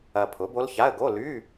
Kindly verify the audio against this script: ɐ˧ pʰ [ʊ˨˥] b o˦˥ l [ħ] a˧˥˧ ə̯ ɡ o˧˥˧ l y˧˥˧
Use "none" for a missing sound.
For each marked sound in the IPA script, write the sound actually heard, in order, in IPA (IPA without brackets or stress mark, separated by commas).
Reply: ʊ˨˥, ç